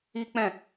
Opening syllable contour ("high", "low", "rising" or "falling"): high